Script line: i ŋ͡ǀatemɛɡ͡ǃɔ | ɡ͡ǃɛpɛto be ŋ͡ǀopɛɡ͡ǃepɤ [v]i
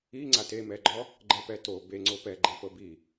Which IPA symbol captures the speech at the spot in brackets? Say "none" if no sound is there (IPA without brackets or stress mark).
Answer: b